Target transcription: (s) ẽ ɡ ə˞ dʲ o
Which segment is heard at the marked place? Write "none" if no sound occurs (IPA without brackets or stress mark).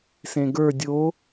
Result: s